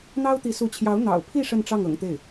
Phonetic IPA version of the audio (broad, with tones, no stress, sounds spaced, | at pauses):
n̪ ɑ˥ ʊ̯ t̪ i˧˥ s u˧˥ t͡ɕʰ j ɑ˧˥ ʊ̯ n̪ ɑ̰˨˩ ʊ̯ pʰ i˥˧ ʂ ə˥˧ n ʈ͡ʂ ɑ˥˩ ŋ ɤ̰˨˩ ŋ t̪ e˥˩ ɪ̯